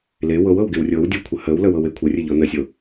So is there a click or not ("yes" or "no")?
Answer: no